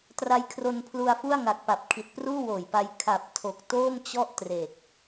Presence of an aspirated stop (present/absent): present